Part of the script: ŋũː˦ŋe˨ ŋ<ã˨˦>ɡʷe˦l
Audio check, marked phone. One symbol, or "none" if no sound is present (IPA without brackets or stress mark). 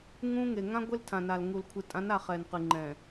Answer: ã˦